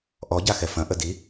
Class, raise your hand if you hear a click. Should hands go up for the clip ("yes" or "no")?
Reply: no